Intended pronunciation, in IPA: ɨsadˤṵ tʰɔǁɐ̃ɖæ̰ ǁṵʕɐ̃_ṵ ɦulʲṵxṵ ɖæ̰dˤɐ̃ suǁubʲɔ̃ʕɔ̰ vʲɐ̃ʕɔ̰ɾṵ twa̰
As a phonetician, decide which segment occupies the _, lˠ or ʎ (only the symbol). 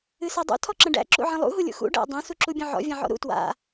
lˠ